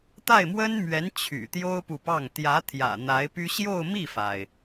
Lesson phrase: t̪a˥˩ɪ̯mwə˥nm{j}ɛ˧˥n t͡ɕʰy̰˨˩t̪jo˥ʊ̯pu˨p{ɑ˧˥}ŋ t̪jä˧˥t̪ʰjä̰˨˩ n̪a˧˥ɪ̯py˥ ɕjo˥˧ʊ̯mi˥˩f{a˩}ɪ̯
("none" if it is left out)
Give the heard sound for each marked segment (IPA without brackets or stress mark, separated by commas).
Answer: ɥ, ɑ˥˩, a˩